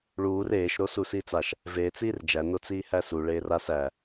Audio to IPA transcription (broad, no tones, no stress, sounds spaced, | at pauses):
ɭ uː r eː ʃ ɾ o s u s iː t͡s a ʃ | v eː t͡s iː r d͡ʒ æ n o t͡s iː h æ s u ɭ eː r a s æ